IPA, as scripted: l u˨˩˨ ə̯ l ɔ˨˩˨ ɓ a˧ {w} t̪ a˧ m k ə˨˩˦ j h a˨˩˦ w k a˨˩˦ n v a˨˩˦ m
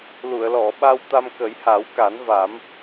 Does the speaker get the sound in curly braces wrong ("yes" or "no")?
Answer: no